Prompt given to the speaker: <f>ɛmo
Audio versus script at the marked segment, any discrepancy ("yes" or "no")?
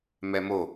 yes